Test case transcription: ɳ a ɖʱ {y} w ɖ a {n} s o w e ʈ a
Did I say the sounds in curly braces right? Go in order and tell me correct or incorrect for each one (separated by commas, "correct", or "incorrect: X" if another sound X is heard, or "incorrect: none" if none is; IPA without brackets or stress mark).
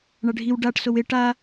incorrect: i, incorrect: ʈ